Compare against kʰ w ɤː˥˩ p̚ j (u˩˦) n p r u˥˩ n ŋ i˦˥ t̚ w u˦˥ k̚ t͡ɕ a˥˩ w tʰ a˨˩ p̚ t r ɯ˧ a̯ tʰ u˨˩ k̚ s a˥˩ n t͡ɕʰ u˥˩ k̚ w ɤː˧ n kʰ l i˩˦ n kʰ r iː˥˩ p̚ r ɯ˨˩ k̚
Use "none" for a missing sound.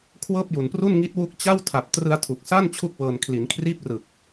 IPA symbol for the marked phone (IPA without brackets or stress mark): u˨˩